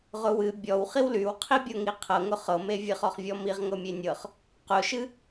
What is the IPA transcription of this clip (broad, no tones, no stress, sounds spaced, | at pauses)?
ʁ ʊ w ɨ bʲ ɔ w χ i w l y w qʰ i bʲ ɤ ŋ i qʰ ɤ ŋ ʊ χ ɤ m e vʲ ɨ χ ɔ χ vʲ ɔ m i ʁ ŋ ɤ mʲ e nʲ ɤ χ | q ʊ ʃ ɨ